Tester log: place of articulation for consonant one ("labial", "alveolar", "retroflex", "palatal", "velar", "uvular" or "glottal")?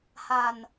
glottal